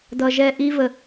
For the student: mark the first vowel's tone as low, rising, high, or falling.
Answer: low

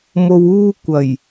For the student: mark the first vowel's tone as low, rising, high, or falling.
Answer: low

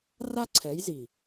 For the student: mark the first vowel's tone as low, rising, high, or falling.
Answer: high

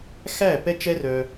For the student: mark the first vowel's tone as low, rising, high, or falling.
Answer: falling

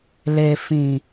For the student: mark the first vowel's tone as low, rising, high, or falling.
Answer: low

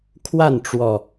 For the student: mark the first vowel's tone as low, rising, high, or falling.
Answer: falling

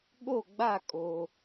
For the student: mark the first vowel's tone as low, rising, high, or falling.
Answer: falling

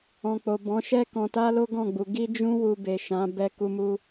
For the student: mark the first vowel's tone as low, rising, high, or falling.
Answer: low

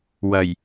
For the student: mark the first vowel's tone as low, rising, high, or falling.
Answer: low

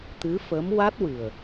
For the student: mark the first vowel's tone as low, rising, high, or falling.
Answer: rising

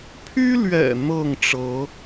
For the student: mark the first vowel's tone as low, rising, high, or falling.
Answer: high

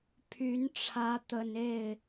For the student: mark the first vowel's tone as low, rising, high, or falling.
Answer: rising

